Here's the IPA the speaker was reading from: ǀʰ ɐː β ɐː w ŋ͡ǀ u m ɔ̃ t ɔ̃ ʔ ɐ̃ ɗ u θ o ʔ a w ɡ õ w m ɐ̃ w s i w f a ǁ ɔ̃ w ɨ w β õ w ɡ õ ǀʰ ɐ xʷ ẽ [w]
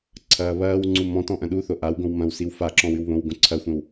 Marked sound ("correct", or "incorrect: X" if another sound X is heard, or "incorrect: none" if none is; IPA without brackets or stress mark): correct